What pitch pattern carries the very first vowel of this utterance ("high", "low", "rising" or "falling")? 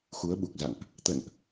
rising